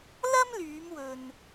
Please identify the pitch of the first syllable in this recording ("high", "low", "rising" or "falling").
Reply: high